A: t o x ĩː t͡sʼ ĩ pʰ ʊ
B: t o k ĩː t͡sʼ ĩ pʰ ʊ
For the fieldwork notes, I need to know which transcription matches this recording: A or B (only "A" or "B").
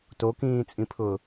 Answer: B